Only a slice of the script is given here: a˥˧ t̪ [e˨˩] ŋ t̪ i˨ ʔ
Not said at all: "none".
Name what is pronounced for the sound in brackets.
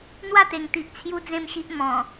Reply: e˨˩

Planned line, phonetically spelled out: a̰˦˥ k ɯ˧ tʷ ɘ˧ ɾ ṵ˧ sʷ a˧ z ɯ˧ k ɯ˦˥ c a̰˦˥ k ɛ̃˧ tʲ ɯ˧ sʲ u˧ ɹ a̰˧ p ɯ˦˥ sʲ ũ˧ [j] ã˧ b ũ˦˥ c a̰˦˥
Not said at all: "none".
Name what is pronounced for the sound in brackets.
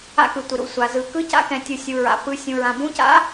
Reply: ɹ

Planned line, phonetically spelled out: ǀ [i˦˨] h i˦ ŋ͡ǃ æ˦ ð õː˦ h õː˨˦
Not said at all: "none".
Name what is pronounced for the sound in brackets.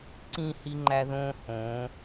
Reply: ĩ˦˨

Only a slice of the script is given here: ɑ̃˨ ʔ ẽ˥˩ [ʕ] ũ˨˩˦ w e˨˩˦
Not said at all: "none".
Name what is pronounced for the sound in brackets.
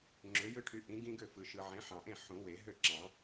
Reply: ħ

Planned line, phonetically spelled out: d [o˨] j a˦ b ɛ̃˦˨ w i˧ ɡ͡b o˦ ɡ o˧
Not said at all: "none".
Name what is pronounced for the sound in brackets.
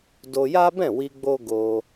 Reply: o˧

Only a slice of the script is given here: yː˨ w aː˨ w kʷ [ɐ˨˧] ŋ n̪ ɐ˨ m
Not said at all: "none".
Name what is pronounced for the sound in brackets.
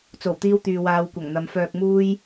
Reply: ɐ˨˩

